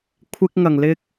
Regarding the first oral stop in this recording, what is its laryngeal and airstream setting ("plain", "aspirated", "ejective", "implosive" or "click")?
aspirated